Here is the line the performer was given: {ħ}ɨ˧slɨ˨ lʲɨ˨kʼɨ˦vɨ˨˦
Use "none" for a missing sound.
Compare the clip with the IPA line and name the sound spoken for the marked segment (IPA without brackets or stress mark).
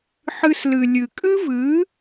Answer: ħ